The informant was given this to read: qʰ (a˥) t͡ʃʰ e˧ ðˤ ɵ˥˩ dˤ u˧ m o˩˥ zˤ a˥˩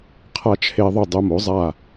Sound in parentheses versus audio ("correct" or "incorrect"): correct